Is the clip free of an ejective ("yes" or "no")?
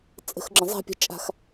no